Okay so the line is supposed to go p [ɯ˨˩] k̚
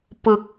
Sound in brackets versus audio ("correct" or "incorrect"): correct